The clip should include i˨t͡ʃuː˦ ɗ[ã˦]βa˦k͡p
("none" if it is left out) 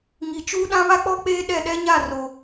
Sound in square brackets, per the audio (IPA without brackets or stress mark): ã˦